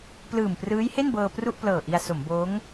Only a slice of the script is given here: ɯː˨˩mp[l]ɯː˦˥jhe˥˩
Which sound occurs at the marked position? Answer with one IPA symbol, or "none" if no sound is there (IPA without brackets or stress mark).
r